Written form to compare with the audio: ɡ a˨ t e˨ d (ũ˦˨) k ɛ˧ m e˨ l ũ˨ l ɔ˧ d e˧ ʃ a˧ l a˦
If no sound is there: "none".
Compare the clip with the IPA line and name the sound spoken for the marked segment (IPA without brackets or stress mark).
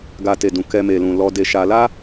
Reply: ũ˨